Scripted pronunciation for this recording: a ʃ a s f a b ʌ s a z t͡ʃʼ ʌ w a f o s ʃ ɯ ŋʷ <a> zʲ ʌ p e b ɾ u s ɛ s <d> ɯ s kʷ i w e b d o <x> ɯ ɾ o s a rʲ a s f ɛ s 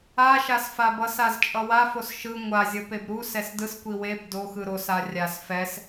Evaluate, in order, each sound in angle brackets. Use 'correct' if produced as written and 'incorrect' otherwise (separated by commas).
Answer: correct, correct, correct